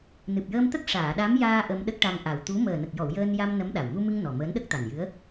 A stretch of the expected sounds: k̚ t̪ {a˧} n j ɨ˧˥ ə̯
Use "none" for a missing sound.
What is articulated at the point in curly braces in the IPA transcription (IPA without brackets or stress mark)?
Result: a˨˩